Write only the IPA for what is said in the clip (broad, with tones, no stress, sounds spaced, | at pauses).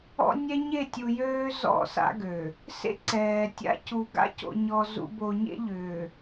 ɔ̰˦ nʲ ɛ˦ ɲ e˦˨ tʲ u˨ j øː˦ z ɔ̰˦˨ s a̰˦ ɡ ø˨ | s ḛ˦ ǀ ɛː˨ tʲ a̰˦ c u˨ ɡ a̰˦ c o̰˨ ɲ ɔ˨ z ṵ˨ b o˨ ɲ ḛ˦ ʎ ʏː˨